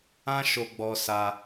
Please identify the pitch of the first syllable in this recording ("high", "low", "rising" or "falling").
high